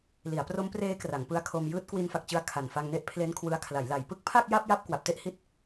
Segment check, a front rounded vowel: absent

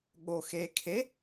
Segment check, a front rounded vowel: absent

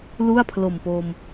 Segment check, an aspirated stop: present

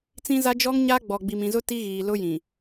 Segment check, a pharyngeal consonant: absent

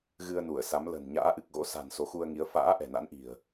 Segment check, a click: absent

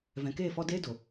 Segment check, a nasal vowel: present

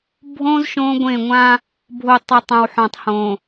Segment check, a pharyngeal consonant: present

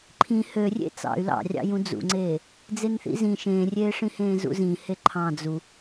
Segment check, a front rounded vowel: present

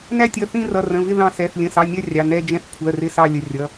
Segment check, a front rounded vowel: absent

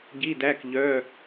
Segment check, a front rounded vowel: present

